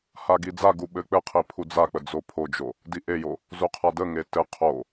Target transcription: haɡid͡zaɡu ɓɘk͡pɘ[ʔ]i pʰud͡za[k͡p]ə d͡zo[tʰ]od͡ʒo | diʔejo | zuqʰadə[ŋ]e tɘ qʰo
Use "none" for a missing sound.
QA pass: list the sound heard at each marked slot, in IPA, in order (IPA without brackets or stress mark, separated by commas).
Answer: qʰ, k͡p, pʰ, ŋ